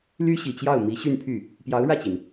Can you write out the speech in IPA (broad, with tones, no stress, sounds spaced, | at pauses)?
l y˥ ɕ i˨˩ t͡ɕ j ɑ˥˩ ʊ̯ m i˧˥ ɕ y˥˧ n pʰ y˥˩ | p j ɑ˧˥ ʊ̯ ɻ ä˥˩ t͡ɕ i˩ n